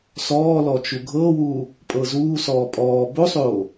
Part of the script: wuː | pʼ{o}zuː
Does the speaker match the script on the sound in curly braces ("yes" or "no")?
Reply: no